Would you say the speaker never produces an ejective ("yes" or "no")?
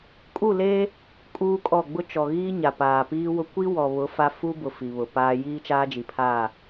no